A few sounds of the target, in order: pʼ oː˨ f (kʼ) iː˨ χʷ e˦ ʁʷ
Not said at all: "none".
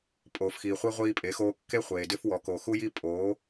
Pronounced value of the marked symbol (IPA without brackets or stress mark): x